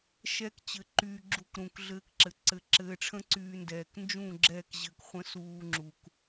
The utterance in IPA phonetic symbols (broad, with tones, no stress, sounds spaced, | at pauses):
ʃ ɛ˦ k t͡ɕ ɘ˧ ǃ yː˧ ɡ͡ǁ u˧ k ɾ ũ˨ k ɮ ɘː˧ k ǁ ɘ˨ ǀ ɘ˨˦ ǁ ɘː˧ ʈ͡ʂʰ ə̃˦ ǀ yː˧ n d ɛː˨ k n d͡ʒ ũ˦˨ ɡ͡ǁ ɛ˦˨ k ʑ ɘ˧ k χʷ ə̃˦ s uː˧ ŋ͡ǁ u˨ k